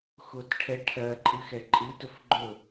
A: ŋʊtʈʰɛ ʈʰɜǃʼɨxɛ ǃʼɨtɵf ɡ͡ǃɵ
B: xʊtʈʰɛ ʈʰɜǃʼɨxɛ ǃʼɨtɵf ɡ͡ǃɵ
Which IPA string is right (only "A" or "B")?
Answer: B